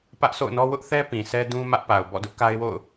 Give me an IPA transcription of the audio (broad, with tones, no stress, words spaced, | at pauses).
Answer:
pä˦ʔsʰo̰˦˨ʊ̯nɔ˦ wʊ˦ʔθɛ˦ pĩ˨sʰɛ˦dũ˦ mä˦ʔpa˨ʊ̯ bɔ̰˦˨dʊ˦ʔka˦ɪ̯wo̰˦˨ʊ̯